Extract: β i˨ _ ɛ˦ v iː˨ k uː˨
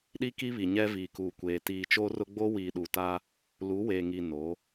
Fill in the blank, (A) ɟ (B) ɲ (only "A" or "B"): B